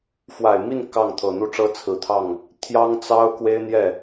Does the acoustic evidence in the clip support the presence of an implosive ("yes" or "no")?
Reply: no